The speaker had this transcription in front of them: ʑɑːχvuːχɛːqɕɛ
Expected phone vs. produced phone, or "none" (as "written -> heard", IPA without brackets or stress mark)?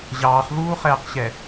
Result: none